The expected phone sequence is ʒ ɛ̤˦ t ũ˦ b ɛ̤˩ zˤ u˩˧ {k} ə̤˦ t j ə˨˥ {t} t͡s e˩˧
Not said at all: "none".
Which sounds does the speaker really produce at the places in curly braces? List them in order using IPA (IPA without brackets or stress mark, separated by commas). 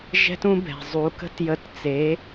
k, t